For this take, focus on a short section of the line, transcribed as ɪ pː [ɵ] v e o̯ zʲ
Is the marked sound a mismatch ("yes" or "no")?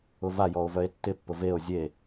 yes